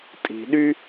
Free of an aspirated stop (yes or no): yes